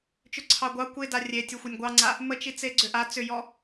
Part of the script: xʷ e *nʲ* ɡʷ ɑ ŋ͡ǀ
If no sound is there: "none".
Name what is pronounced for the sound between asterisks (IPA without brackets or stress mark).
nʲ